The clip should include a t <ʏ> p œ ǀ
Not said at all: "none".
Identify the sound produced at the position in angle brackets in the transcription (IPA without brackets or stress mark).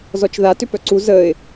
ʏ